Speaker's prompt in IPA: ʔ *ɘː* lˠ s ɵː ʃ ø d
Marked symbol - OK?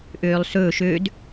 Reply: no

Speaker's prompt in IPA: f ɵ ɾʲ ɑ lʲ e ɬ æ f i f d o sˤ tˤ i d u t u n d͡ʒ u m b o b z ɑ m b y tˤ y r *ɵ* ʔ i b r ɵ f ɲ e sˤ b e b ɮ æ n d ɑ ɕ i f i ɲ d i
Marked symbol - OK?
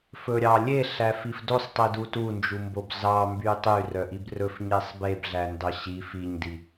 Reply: no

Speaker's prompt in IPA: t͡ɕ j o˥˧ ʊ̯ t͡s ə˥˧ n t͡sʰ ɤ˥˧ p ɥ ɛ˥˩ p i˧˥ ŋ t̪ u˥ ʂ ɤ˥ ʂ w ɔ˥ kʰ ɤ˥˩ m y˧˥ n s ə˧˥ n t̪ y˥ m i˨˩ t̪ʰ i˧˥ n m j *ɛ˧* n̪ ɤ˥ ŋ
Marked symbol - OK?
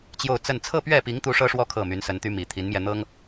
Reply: yes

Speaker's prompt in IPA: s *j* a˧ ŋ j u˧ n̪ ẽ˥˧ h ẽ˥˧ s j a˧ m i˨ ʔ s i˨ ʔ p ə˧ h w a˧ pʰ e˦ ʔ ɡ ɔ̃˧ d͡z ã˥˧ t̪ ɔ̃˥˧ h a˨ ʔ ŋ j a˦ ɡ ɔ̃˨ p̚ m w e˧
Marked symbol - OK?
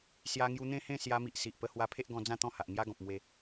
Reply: yes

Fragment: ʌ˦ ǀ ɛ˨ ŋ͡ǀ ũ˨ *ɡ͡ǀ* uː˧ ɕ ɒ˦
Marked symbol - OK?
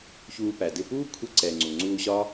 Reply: no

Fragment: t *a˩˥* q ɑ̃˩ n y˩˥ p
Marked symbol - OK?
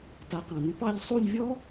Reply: yes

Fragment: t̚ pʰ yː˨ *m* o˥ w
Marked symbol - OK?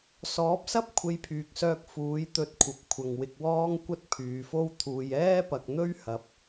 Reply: no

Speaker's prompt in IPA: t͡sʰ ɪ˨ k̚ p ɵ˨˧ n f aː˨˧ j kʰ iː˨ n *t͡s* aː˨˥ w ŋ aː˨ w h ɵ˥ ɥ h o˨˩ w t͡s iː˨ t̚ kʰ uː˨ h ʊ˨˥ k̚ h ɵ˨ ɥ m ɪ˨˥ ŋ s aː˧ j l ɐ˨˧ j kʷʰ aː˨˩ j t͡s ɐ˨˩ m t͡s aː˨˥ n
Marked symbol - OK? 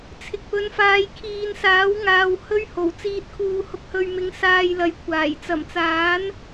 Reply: no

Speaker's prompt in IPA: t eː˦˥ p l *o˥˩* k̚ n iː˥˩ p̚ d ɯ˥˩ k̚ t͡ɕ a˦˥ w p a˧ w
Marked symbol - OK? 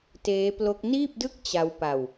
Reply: no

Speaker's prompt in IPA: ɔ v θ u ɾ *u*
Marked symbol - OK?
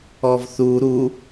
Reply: yes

